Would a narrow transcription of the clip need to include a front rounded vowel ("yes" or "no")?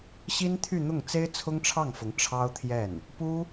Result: yes